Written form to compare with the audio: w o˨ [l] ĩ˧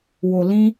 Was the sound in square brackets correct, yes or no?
yes